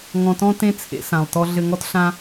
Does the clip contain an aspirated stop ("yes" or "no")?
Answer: yes